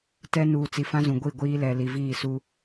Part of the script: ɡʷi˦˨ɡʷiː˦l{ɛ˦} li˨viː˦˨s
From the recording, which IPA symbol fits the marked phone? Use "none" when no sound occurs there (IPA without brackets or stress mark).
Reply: ɛ˨